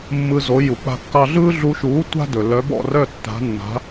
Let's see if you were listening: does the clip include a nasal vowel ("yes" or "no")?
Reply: no